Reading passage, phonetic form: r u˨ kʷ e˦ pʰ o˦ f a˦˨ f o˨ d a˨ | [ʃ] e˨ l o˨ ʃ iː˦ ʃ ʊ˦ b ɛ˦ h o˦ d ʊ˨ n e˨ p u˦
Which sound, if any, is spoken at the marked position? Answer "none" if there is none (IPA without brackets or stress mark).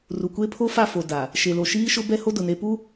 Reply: ʃ